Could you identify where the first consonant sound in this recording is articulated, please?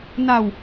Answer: alveolar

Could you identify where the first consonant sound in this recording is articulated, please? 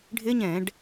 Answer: retroflex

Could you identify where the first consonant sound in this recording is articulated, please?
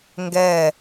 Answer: velar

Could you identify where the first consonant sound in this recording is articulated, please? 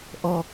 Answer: glottal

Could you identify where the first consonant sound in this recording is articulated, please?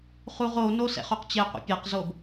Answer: uvular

